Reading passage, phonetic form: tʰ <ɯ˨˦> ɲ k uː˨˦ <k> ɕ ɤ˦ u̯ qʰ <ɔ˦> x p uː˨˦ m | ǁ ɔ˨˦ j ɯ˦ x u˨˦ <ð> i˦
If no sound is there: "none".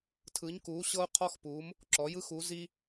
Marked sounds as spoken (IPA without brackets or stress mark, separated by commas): ɯ˨˦, none, ɔ˦, z